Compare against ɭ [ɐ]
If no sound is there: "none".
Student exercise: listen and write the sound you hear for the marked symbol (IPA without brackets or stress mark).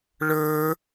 ə˞